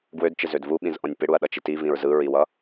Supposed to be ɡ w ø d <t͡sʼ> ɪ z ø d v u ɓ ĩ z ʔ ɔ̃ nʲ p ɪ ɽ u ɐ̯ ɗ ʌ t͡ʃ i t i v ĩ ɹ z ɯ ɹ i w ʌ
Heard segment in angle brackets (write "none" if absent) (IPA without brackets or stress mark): t͡ʃ